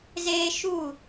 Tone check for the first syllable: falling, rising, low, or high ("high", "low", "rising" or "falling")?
high